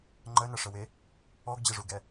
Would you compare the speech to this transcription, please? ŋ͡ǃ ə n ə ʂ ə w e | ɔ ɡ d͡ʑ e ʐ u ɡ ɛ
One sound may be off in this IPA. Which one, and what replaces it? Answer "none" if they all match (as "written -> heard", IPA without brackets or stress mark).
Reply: none